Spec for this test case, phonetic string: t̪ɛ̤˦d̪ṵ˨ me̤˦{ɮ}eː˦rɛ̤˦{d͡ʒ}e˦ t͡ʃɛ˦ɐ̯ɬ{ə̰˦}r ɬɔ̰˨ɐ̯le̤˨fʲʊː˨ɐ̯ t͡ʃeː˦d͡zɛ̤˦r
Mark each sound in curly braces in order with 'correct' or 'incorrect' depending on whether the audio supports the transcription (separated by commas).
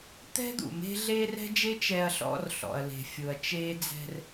correct, correct, incorrect